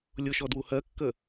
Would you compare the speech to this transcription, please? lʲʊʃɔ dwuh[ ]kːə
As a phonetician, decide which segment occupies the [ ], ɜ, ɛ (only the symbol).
ɜ